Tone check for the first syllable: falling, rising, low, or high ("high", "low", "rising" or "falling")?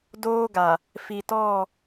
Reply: high